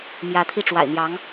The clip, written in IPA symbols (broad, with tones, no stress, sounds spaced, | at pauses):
m j ä˧˥ t̪ʰ i˥˩ ʈ͡ʂ w a̰˨˩ ɪ̯ n̪ j ɑ˧˥ ŋ